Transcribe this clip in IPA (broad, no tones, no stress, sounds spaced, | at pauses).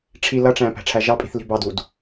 ʈ͡ʂʰ i l ʌ ʈ͡ʂ æ̃ p æ̤ ʈ͡ʂʰ æ ʒ ɑ pʼ i̤ θ l i̤ b ɑ d u d